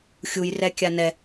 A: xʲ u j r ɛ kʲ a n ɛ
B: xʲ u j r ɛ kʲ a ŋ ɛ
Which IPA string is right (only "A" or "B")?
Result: A